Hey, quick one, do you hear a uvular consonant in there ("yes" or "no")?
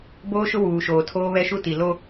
no